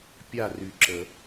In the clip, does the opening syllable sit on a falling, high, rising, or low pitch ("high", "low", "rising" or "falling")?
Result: falling